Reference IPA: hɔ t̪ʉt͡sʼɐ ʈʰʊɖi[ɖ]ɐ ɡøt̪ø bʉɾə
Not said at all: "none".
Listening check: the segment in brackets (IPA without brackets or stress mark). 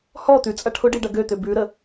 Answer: ɖ